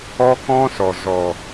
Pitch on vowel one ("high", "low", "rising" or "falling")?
high